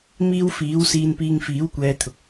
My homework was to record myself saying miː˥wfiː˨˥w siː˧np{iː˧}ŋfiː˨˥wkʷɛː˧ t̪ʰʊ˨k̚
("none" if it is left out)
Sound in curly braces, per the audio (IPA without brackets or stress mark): iː˧